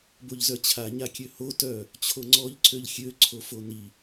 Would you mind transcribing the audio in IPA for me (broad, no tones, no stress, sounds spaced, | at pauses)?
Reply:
b o ʎ z œ t͡ɕʰ a ɲ a kʲ ø h o t œ | t͡ɕʰ o ŋ͡ǀ ɔ ʎ ǀ ø ʎ xʲ ø ǀʰ o f o n i